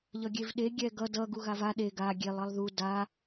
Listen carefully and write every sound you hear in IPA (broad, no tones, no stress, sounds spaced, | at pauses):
ʎ ʌ ɡʲ e v ɗ e ɡʲ ɛ ɡ ʌ d ʌ ɡ u ɣ a v a ɗ e ɡ a ɡʲ e lˠ ʌ lˠ ð u d a